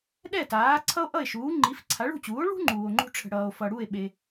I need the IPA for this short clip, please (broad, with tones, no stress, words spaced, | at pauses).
ɗɛ˥˩taː˩˥ ǀʰʌ˥o̯ʔʌ˥˩e̯ʃuː˩˥ ŋ͡ǃi˩˥fǀʰa˩˥ ɭṳ˥˩t͡ɕuː˩˥o̯ ɭṳ˥ ŋ͡ǃuː˩o̯ŋ͡ǃṳ˥ʈ͡ʂʰə̤˩ ɽʌː˩o̯ fʌ˩ɽu˥˩e̯ ɓe˩